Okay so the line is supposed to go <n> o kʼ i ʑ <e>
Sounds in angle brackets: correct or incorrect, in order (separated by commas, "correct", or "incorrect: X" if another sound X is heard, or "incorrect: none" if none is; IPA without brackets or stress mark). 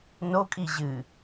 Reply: correct, incorrect: ɨ